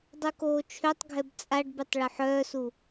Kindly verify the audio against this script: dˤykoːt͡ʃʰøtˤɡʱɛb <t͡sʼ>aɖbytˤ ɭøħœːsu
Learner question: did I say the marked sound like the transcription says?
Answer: yes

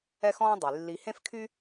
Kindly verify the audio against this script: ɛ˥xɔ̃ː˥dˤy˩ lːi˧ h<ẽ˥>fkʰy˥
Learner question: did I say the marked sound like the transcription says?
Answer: yes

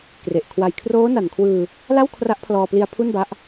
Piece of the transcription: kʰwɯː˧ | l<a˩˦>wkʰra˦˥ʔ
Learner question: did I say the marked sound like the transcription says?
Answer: no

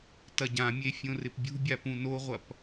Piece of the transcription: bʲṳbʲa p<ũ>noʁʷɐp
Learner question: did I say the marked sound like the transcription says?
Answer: yes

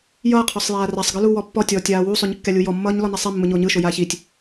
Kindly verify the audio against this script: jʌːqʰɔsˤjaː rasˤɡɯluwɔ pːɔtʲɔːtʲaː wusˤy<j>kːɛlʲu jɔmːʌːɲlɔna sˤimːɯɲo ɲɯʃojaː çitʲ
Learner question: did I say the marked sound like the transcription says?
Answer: no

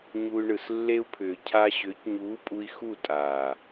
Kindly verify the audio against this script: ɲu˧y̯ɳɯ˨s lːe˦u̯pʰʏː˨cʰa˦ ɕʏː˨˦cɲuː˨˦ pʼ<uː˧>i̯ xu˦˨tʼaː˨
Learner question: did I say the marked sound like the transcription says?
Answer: no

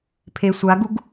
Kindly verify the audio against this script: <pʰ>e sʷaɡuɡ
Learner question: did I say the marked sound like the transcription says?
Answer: yes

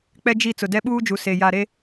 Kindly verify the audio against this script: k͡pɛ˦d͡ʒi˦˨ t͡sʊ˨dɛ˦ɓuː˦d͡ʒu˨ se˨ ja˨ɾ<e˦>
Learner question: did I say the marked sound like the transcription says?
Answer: yes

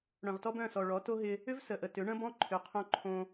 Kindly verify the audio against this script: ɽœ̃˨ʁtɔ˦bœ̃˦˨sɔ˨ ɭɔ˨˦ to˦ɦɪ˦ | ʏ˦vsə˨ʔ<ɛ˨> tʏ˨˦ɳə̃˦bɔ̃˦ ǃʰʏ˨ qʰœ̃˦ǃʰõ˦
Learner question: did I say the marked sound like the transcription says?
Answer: no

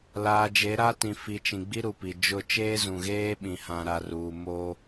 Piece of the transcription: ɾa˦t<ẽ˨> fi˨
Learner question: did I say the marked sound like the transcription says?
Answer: no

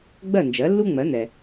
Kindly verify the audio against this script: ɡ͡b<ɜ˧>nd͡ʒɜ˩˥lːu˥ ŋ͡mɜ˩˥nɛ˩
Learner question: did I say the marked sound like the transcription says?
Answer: no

